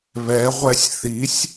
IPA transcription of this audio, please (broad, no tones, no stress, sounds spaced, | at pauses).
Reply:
β ɛ ʁʷ ɛ sʲ θ i sʲ